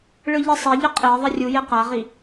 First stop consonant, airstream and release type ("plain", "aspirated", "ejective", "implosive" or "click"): ejective